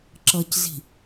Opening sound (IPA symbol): ǁ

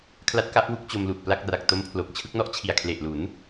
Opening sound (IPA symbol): kʰ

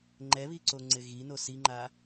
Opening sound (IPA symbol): ŋ͡ǃ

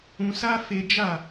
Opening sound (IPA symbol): ũ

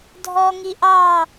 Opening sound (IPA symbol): dʱ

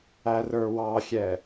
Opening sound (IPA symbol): æ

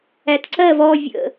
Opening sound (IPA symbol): æ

